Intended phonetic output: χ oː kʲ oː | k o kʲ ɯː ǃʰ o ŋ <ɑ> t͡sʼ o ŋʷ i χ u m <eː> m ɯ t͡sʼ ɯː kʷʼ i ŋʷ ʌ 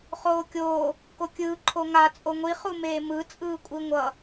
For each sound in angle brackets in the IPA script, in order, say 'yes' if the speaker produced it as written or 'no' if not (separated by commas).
no, yes